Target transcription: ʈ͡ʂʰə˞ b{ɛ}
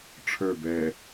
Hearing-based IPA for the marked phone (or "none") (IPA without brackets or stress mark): ɛ